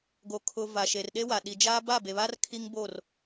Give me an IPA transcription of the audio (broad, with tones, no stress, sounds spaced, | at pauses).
ɡ o˨ kʰ ʊ˨ v a˨ ʃ e˨ r ɗ e˦ w a˨ ɗ i˨ d͡ʒ aː˦ b a˦˨ b e˨ β a˦ r kʰ i˦ ŋ b o˦˨ r